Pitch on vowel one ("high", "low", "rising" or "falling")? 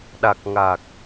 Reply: low